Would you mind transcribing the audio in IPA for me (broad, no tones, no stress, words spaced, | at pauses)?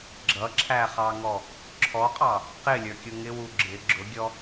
ɡ͡ǁʌǁʰæχɑŋɔ | ǁʰɔqʼɑ | qɪlʲə˞kʲʊ ŋɪwu ɡ͡ǁɪ ɡ͡ǁʊɡʲɔ